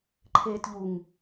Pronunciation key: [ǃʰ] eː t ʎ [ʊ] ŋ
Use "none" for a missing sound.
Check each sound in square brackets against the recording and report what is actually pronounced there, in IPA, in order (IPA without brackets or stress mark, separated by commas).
ǃʰ, u